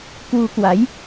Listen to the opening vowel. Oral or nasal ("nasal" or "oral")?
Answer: oral